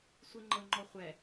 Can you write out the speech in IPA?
sʷiŋ͡ǃɤŋ͡ǃɔχʷɛ

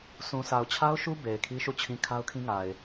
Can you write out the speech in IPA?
sũ˨sa˨ʊ̯t͡ɕʰa˦ʊ̯ʃu˦ be˨ɪ̯ kʰi˦ʃu˦˨t͡ɕʰĩ˦ kʰa˦ʊ̯kʰĩ˦ŋa˨ɪ̯

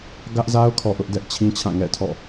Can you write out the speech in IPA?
ɡä˦ʔza˦ʊ̯kʰɔ˨ ʔʊ˦ʔdɛ˦ʔt͡ɕʰĩ˦t͡ɕʰã˦˨ ŋɛ̰˦˨tʰɔ̰˦˨

